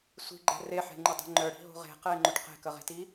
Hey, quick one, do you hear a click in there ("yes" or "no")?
yes